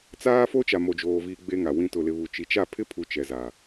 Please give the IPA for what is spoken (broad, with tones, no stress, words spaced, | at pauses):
t͡saː˦fo˦ t͡ʃa˨mo˨d͡ʒoː˨viː˨ ɡ͡be˦ŋa˨wĩ˦ tʊ˨lɪ˨βu˨ t͡ʃi˨t͡ʃa˦˨ pʰɪ˦pʰu˨ t͡ʃɛ˨za˨